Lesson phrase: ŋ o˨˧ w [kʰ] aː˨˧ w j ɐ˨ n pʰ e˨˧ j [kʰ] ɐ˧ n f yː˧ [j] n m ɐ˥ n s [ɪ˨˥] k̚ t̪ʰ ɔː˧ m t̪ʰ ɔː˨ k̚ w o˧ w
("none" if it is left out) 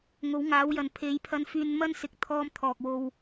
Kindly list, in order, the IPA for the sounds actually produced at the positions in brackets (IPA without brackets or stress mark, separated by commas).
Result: ŋ, pʰ, none, ɪ˧